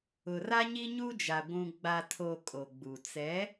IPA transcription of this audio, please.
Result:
ʊ˨ r a˦ ɲ i˦ ɲ u˦ d͡ʒ a˨ ɡʷ ũ˨ ɡ͡b a˨ tʰ o˨ kʼ o˨ ɡ͡b u˨ t͡s ɛ˨˦

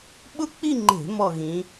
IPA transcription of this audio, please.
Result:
ɓ ʊ˥˧ k͡p i˥˧ ŋ͡ǃ e̤˧˩˧ m ɔ˥˧ ɣ ĩ˧˥

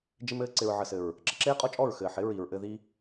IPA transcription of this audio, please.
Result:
d͡ʒ ɪ˦ m ɘː˦ ǀ ɪ˨ ɹ ʕ ə˨ s ɘ˨ ɹ | ǁ ə˧ ǁ eː˦ qʼ ɔ˦ t͡ʃʼ ɔ˦˨ ɹ x ɘː˨ ħ ɪ˨˦ ɹ i˨ ɹ ʔ ɘ˧ ð i˦

